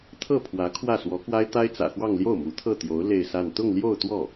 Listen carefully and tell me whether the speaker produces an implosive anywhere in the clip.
no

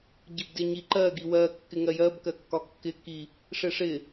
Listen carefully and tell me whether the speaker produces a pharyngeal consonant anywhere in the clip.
no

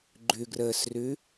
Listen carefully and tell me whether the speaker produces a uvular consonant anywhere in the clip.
no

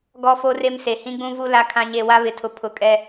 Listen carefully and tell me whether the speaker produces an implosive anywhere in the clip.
no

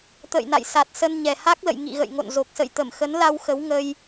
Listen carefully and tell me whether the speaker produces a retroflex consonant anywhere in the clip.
no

